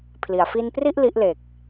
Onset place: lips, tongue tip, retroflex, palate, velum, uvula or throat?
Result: lips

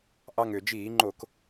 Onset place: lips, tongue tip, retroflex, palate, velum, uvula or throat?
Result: throat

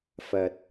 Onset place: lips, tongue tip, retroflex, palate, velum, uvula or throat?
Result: lips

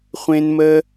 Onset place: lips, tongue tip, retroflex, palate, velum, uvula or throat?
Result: uvula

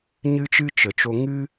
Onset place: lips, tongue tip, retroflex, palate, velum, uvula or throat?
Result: palate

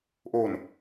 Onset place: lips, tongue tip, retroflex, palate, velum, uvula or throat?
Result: throat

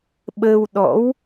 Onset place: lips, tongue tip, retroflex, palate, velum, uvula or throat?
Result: lips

